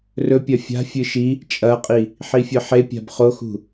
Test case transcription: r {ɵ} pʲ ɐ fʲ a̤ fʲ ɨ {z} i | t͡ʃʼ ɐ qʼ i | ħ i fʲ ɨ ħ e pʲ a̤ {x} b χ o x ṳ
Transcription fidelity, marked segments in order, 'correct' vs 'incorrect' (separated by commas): correct, incorrect, incorrect